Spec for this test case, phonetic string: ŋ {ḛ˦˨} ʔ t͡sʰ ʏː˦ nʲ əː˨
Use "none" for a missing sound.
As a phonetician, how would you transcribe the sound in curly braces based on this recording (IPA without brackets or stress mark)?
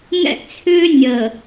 ɛ̰˦˨